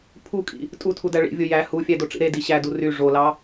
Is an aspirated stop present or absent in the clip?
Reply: present